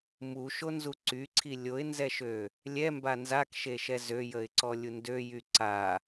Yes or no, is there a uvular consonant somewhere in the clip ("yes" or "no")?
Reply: no